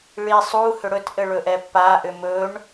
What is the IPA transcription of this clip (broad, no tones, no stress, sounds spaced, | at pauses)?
ɭ i sˤ u h ʏ ɽ ɵ t ʔ ɘ ɭ ɵ ʔ ɛ pː a ʔ ʏ m ɵ ɳ